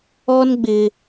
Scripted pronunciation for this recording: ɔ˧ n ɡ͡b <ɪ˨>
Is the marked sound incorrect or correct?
correct